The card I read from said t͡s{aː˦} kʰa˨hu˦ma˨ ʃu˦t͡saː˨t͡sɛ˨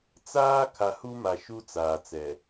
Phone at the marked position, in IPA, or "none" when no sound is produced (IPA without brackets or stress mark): aː˦